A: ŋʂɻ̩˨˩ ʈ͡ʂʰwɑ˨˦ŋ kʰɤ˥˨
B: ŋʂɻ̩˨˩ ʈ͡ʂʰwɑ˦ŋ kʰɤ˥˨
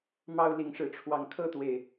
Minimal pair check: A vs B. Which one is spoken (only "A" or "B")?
A